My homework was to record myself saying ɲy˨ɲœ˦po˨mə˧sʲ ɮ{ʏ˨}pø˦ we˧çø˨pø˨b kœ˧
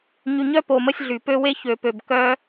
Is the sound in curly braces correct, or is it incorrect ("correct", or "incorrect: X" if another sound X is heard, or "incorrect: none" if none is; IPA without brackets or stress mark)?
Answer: incorrect: y˨